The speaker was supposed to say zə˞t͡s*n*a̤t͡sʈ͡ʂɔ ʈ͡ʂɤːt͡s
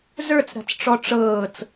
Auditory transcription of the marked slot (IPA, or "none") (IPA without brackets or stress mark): ɾ